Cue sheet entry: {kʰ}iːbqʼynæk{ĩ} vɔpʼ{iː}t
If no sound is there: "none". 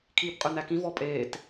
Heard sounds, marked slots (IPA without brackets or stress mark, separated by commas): kʰ, ĩ, eː